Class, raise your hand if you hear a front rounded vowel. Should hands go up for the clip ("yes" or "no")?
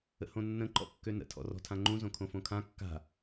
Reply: yes